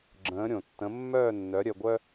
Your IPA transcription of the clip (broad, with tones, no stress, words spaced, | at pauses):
ɡ͡ǁə̃ː˩˥ ɾʲõ˩tːə̃˩˥ mːœː˥˩nːœ˩˥ ɾʲœ˧ɡʷœ˥